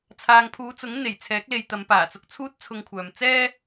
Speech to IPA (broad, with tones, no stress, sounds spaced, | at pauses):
t͡sʰ aː˨ ŋ pʰ uː˨˧ t͡s ʊ˨˥ ŋ n̪ e˨˩ j t͡sʰ ɛː˨˥ k̚ l e˨ j t̪ ɐ˨˧ m p aː˨˩ t͡s ʊ˧ k̚ t͡sʰ uː˥ t̚ t͡sʰ ʊ˧ ŋ kʷʰ œː˨ m t͡s ɛː˥